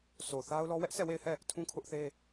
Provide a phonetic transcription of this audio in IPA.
s o˨ θ a˦ ʊ̯ l ɔ˦ w ɛ˦ ʔ sʰ ɛ˦˨ w e˦˨ ɪ̯ h ɛ˦˨ | tʰ ũ˦ kʰ ʊ˦ ʔ θ e˦

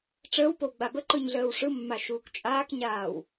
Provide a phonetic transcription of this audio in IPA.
ʈ͡ʂ əː w p o w ɡ͡b a b ə ǃ ɯ ɲ ɮ əː w ʂ ɯ mː a ʃ uː k t͡ʃʼ aː k ɲ aː w

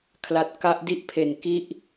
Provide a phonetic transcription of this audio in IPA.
kʰ l a˨˩ t̚ k a˦˥ ʔ d i˦˥ ʔ pʰ e˨˩ n k i˦˥ ʔ

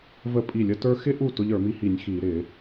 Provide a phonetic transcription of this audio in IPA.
v ə˥˩ pʼ i˥˩ lʲ ə˥ t ə˞˥ x ɪ˥ ʔ u˥˩ t ʊ˥ ʎ ə˞˧˩˧ m i˥ h i˧˩˧ nʲ x i˧˩˧ ɾ ɪ˧˩˧

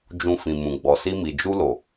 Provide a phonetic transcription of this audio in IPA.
d͡ʒ ũ˨ f ĩ˨ m ũ˨ ɡ͡b ɔ˨ s i˧ m i˨ d͡ʒ u˧ l o˨

